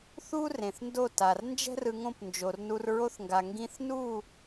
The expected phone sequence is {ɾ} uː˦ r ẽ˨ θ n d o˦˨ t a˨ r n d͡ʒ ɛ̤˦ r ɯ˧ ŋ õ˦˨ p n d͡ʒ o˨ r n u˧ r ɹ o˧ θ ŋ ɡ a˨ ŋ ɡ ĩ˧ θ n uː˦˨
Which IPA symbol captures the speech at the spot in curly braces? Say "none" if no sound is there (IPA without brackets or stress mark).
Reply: θ